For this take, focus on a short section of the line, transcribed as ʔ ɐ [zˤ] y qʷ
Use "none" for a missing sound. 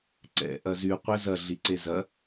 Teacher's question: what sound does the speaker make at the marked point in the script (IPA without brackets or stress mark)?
z